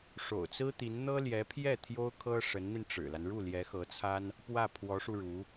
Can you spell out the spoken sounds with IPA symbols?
ʂ o̰˨˩ ʊ̯ t͡s ɹ̩˥ t̪ i˧˥ n n̪ ɤ˥ l j ɛ˧˥ pʰ j ɛ˥˩ t̪ʰ j o˥ ʊ̯ kʰ ɤ˥ ʂ ə˧˥ n n̪ i˧ n ʈ͡ʂ ɻ̩˨˩ l a˦ n ɻ u˥˩ l j ɛ˧˥ x ɤ˧˥ t͡sʰ a˥ n | p w ä˥˩ pʰ w ɔ˧˥ ʂ u˧ ɻ u˧˥

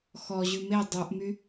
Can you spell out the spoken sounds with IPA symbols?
x ɔ ʑ ʉ m e dˤ u ʔ m y

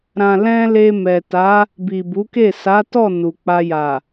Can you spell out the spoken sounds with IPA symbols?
ɾ ã˨ l ɛ̃˧ l e˧ m ɛ˨ t a˨˦ | b i˨ b u˨˦ k e˦˨ s a˨˦ t ɔ˦˨ n u˨ k͡p a˧ j a˨

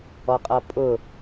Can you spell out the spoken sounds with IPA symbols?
ɔ qʼ ʌ pʼ ʊ

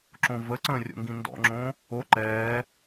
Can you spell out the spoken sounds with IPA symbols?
ǁ õ v ə ǀ ə̃ː rʲ o̰ ŋ ɡ ĩ n d ɔ̰ ŋ͡ǁ õ | o ǃ ɛː

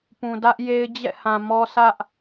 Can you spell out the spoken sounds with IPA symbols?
p ũ˨ d ä˦ ʔ j e˦ ɪ̯ d͡ʑ ɛ̰˦˨ h ã˨ m ɔ˦ sʰ ä˦ ʔ

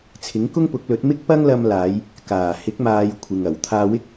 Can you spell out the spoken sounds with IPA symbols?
t͡sʰ ɪ˨˥ ŋ k ʊ˥ ŋ p ʊ˨˥ k̚ l ɵ˨˥ t̚ m ɪ˥ k̚ p ɐ˥ ŋ l ɐ˧ m l aː˨˧ j | k aː˨˩ h ɪ˨˥ k̚ m aː˨˧ j kʷʰ ɪ˨ ŋ ɐ˨˩ w t̪ʰ aː˧ w ɪ˥ k̚

